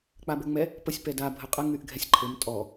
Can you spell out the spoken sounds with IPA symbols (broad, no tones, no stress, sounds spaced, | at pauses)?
k͡p a b ɘ ŋ͡m ɛ | p ə sʲ p ɛ d a bʱ ə qʼ ə ŋ y ʔ ɡʱ ɛ sʲ ǃʰ ɘ m tʼ ɔ